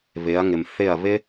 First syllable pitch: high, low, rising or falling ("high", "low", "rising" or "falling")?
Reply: rising